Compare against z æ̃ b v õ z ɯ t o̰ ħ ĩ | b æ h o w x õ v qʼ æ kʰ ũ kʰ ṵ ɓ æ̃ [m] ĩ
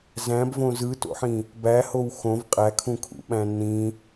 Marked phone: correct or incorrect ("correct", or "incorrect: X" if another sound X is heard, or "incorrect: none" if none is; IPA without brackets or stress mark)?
incorrect: n